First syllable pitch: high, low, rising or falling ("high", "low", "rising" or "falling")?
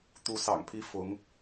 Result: rising